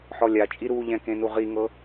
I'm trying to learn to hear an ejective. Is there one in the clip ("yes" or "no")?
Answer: yes